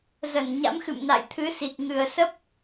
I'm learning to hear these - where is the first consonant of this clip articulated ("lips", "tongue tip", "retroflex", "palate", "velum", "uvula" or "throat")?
tongue tip